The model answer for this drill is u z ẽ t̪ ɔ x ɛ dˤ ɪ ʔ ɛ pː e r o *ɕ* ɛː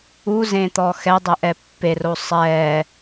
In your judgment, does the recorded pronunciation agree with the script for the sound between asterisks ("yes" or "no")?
no